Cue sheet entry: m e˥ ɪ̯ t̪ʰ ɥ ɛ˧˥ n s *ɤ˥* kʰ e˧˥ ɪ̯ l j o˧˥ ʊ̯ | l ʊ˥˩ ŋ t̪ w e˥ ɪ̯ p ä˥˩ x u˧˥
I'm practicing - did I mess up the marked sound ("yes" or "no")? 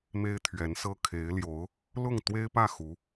no